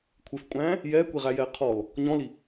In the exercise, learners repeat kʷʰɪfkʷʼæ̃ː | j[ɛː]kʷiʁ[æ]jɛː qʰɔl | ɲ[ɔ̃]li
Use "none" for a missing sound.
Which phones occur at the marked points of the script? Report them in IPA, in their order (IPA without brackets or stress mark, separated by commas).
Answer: ɛː, æ, ɔ̃